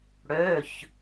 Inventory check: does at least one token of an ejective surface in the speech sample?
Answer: no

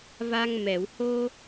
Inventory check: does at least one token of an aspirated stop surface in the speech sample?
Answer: no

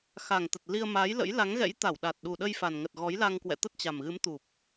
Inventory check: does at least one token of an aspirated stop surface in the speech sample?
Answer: no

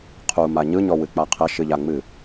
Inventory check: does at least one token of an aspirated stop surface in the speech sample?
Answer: yes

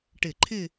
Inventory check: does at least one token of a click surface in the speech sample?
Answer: yes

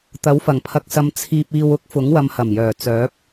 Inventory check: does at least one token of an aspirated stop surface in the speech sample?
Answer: yes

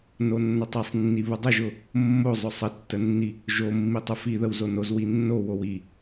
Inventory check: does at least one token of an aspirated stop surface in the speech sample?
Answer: no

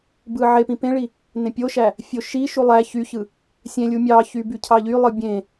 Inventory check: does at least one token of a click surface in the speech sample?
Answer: no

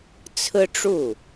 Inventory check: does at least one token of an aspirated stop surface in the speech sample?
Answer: yes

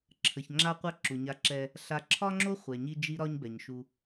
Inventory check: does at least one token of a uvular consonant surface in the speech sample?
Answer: yes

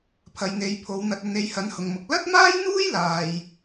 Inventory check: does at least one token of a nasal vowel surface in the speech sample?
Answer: no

